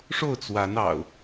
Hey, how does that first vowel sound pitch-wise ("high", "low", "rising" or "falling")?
falling